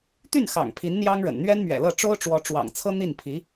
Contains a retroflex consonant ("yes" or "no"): yes